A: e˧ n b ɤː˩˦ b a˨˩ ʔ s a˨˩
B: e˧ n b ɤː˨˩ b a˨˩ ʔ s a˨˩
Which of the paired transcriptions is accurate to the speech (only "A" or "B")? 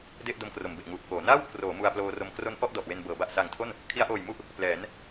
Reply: A